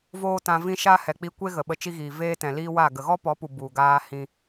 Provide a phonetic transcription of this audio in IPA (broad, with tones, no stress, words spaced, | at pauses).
voː˦tã˧vĩ˦ ʃa˦ hɛ˨k͡pi˧kʷe˦ ɣə˨ɓə˧ t͡ʃi˦ɣiː˨ veː˦tɛ̃˨liː˦ wa˦˨ ɡə˨ɣɔ˦pɔ˨˦pu˨ bu˨ɡaː˧ hĩ˧